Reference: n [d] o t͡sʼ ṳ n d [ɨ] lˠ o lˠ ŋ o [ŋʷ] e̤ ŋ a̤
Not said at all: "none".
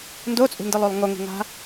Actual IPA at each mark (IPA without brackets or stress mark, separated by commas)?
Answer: d, ɨ, ŋ